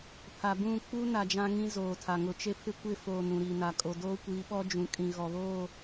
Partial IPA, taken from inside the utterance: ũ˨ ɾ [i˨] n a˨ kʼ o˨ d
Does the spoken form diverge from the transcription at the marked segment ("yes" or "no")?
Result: no